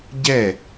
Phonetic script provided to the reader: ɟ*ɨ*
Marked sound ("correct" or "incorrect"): incorrect